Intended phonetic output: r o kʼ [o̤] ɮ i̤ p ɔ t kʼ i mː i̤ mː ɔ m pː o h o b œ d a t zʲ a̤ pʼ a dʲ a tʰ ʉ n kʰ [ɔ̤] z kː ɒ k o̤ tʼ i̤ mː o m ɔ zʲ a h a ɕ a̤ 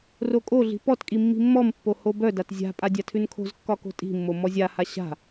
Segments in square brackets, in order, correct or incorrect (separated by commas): incorrect, incorrect